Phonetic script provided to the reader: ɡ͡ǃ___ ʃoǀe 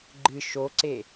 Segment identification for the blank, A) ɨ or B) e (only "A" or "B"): A